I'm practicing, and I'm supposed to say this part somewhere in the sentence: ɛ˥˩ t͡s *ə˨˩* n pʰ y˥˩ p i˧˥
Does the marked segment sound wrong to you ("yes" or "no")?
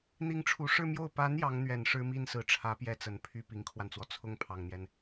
no